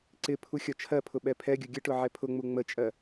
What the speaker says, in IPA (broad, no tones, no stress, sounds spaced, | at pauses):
ǀ ɪ pʰ u xʲ ɒ t͡ʃʰ ɜ pʰ ʊ ɓ ɛ pʰ ɛ ɡʲ ʊ ɡʲ ə ʈ ʊ ʕ ɛ pʰ ʊ ŋ͡m u ŋ͡m ə t͡ʃʼ ɜ